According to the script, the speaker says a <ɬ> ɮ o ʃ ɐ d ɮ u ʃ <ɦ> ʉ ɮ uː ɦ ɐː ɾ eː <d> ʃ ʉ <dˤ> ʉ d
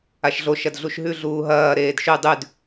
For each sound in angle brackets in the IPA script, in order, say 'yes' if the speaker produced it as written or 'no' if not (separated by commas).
no, yes, yes, yes